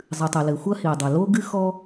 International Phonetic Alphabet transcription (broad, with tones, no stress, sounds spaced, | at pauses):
zˤ ɨ˩ tˤ ɘ˩ l ɘ˩ xʷ ɐ˦ h i˩ dˤ ɐ˩ l o˦ ɡ ɨ˦ x ɔ˦